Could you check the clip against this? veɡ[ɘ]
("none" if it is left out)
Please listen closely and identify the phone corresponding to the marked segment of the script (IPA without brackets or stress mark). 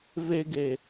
e